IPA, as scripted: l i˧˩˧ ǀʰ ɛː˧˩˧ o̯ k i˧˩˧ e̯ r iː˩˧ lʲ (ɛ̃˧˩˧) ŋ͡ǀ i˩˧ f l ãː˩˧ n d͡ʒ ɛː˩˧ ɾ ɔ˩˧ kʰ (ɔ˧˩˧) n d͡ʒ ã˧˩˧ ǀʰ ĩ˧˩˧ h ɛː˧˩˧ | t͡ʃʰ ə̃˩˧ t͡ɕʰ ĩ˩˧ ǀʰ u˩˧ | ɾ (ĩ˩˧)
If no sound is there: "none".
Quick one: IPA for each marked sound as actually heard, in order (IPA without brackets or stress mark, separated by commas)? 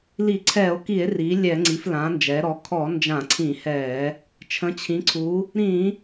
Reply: ɛ˧˩˧, ɔ˧˩˧, ĩ˧˩˧